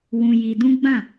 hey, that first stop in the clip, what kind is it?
plain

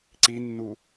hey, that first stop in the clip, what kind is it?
click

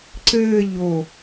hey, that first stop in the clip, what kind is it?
click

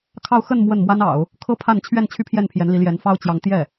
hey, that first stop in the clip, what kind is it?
aspirated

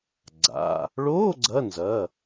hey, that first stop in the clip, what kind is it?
click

